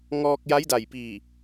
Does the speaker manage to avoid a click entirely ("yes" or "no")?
yes